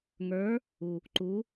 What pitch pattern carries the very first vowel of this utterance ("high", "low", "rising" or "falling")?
rising